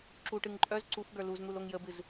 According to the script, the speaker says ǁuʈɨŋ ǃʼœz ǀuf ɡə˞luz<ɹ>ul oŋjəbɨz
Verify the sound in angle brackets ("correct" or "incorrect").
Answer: incorrect